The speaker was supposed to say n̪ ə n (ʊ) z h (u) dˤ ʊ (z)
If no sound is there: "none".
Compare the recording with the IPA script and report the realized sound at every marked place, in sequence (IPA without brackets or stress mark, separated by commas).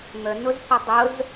ʊ, u, z